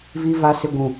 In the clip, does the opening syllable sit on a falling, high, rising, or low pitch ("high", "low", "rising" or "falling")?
low